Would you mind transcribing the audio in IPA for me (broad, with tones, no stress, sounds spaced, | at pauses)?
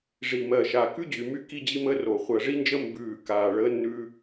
ʐ i˨˩ m ɜ˨˩ ʃ a˨˩ k ʉ˥ d͡ʑ y˨˩ m y˥ k i˥ d͡ʑ i˥ m əː˥ r o˨˩ χʷ ɜ˨˩ ʐ i˥ n d͡ʒ ə˥ m b ʉː˨˩ k aː˨˩ ɭ əː˥ nː ʉː˥